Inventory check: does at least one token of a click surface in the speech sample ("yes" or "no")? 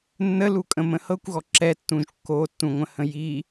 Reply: yes